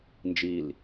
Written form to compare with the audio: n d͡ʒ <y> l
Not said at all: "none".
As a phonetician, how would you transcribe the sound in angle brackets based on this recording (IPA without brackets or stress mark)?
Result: i